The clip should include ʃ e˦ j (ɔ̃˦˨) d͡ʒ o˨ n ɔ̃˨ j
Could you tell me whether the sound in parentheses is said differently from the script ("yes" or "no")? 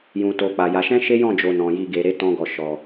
no